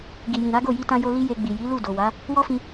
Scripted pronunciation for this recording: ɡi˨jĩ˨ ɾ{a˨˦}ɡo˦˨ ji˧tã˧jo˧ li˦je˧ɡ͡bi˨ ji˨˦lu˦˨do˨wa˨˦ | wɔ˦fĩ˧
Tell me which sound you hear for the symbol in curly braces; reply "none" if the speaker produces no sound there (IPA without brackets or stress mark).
a˨˦